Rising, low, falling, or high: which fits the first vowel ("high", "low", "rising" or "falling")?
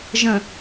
low